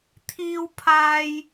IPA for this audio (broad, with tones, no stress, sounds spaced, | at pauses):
t̪ʰ iː˥ w pʰ aː˥ j